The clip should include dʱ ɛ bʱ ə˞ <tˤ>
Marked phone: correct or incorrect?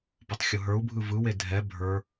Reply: incorrect